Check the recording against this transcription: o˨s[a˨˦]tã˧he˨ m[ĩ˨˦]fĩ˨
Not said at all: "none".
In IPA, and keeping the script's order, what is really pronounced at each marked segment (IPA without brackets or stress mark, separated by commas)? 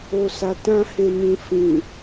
a˨, ĩ˨